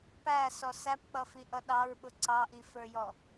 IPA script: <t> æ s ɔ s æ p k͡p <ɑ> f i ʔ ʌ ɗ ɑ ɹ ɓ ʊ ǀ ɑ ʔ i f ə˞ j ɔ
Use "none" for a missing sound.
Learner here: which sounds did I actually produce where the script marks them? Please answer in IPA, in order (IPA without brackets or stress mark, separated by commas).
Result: p, ʌ